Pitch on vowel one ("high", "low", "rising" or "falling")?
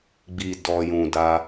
low